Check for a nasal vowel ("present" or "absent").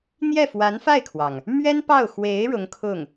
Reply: absent